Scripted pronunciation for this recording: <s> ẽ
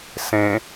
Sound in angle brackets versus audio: correct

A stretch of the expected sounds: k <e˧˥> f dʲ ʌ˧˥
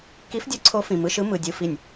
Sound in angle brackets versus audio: incorrect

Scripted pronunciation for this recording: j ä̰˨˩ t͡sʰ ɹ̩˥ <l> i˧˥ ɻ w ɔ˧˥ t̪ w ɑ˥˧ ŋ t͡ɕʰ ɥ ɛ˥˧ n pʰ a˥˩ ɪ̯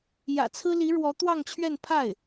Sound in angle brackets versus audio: correct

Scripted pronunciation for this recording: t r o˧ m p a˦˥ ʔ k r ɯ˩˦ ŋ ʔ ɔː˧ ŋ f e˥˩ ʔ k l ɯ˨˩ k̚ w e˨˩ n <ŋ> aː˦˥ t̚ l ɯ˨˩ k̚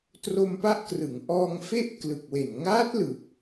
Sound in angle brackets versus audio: correct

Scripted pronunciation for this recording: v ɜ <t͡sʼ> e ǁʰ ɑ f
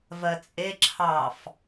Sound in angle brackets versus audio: correct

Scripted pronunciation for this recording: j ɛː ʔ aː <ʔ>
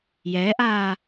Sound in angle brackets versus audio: incorrect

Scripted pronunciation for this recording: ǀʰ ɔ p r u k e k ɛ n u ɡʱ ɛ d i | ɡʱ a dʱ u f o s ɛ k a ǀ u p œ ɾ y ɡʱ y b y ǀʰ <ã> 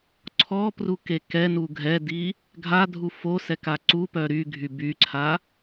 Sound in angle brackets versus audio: incorrect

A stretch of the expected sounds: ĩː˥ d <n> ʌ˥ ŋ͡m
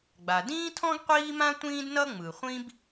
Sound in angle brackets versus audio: correct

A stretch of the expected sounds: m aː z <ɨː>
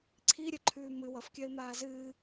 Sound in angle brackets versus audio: correct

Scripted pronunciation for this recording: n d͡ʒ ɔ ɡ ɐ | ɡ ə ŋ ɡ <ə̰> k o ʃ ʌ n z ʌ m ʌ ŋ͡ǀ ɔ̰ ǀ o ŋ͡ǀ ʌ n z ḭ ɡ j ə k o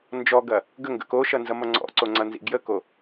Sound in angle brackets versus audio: correct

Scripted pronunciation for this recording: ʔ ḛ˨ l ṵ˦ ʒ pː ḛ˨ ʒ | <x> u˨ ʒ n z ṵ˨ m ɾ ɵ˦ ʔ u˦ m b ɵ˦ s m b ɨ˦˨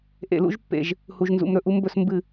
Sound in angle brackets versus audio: incorrect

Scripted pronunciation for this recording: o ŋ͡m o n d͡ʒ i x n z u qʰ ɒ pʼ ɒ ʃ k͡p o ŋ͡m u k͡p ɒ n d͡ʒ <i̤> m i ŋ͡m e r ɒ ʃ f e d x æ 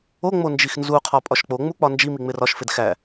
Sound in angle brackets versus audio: incorrect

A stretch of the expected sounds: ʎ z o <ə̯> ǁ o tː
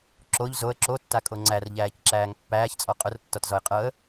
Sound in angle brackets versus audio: correct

